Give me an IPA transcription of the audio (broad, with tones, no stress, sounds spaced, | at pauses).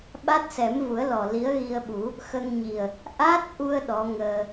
ɓ a˦˥ t̚ s ɛ˨˩˦ m v u˨˩˦ ə̯ l ɔ˨˩ l i˧˥ ə̯ ɣ i˧ ə̯ ɓ u˨˩˦ | x ə˧ ŋ ɲ i˨˩ ə̯ | ʔ a˦˥ t̚ ʔ u˧ ə̯ ɗ ɔ˧˥ ŋ əː˧